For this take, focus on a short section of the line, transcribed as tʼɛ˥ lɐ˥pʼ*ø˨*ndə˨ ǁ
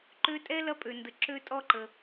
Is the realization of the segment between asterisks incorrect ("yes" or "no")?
no